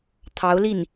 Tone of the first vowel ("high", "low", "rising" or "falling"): rising